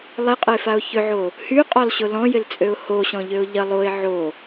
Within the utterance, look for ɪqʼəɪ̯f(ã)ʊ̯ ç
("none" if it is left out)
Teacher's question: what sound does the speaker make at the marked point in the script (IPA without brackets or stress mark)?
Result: a